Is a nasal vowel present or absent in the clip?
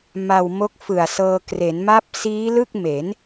absent